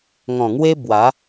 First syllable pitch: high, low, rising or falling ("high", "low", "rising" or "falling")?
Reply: low